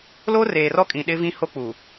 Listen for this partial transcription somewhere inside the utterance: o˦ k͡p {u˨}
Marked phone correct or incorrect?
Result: correct